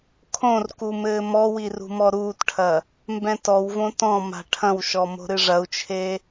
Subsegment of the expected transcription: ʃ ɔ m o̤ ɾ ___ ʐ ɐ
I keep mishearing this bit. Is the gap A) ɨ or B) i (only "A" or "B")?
A